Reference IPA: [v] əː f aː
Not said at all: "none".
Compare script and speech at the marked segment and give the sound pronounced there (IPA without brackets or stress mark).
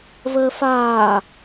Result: v